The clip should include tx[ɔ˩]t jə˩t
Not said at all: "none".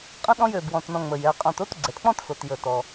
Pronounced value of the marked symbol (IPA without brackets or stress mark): o˩